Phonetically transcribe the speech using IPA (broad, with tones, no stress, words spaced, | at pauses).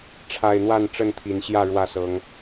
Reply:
ʈ͡ʂʰa˨˩ɪ̯ n̪wa˥˨nʈ͡ʂə˥˨nt̪ʰi˨˩nɕjä˥˨ ɻwä˥˨sɤ˨˦ŋ